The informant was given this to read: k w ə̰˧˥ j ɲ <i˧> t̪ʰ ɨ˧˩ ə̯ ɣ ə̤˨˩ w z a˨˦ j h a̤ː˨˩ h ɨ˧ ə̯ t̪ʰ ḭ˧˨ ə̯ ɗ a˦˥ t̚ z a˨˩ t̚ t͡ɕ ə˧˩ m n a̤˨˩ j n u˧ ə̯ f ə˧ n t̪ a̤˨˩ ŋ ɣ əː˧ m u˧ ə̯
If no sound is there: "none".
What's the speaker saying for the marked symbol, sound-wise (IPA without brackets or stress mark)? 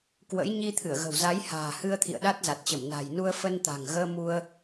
i˧